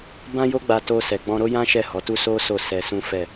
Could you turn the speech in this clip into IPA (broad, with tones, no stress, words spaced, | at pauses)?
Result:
bã˦jo˦ɡ͡ba˧ to˧ sɛ˨ɡ͡bɔ̃˧ɾo˦ jã˦ ʃɛ˦˨hɔ˨˦tu˦ so˦ so˦˨ sɛ˧sũ˦fɛ˦˨